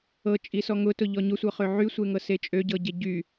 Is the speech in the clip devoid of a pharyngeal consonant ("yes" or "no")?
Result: no